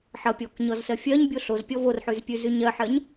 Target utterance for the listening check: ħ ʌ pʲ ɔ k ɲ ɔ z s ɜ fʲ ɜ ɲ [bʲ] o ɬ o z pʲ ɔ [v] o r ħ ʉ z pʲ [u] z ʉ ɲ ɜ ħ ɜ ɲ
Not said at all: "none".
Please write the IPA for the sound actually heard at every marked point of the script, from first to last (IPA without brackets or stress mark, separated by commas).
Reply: bʲ, v, ʉ